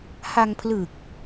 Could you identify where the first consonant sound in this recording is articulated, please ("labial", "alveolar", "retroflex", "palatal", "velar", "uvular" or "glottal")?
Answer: glottal